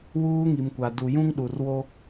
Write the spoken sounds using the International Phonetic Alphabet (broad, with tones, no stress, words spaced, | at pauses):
wuː˦ŋi˨mkʷa˨ du˨ jũ˦ŋɗu˨rwo˦